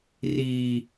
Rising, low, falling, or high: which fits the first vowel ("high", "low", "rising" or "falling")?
low